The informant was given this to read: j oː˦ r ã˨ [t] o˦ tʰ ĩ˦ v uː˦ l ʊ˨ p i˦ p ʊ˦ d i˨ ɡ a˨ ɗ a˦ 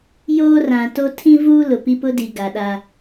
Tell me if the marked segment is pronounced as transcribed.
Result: yes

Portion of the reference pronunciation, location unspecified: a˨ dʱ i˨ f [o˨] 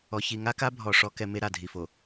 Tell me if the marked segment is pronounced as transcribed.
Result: yes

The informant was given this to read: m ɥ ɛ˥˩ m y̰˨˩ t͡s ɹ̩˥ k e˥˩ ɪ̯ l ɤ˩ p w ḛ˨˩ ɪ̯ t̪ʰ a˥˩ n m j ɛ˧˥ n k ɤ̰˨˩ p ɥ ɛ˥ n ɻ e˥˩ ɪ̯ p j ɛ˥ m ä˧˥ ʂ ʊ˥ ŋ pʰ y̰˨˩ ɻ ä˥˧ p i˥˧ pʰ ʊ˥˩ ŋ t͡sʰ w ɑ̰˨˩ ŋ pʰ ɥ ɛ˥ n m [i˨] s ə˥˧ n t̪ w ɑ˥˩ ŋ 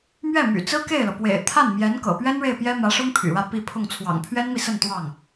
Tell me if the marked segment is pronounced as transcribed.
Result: yes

